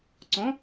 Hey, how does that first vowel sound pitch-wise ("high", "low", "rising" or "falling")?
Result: rising